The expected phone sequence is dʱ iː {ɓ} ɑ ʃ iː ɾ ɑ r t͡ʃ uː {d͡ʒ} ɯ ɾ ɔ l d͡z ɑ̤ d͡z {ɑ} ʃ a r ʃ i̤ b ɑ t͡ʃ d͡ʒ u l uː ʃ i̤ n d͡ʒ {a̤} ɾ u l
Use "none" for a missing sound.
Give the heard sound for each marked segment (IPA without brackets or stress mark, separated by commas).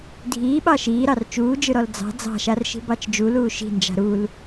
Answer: ɓ, d͡ʒ, ɑ̤, a̤